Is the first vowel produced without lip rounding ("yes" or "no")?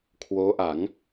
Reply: no